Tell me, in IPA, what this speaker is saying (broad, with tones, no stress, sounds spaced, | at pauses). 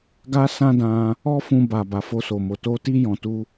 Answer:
ɡ a˦ s ã˦ d ã˧ | ɔ˦ f ũ˧ b a˨ b a˨ f o˧ s o˨ m o˨ t o˧ t i˦ j ɔ̃˧ t u˦